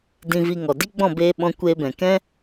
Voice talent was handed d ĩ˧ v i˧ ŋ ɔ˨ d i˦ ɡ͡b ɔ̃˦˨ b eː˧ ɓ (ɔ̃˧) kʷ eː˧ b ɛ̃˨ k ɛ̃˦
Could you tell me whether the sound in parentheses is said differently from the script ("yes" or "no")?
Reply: no